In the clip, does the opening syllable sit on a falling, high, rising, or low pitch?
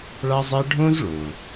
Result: high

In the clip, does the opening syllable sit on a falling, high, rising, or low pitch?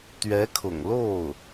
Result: rising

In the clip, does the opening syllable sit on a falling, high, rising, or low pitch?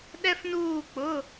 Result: high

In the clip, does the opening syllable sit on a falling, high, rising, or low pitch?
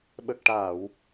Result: low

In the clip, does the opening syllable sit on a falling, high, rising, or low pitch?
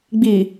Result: low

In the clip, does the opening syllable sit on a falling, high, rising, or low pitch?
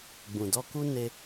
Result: low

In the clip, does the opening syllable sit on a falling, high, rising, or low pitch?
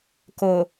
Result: low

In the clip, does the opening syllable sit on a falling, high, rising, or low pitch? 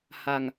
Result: low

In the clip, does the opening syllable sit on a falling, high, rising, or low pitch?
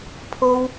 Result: high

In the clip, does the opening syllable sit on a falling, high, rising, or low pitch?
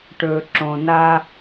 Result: low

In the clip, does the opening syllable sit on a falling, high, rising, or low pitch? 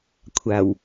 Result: low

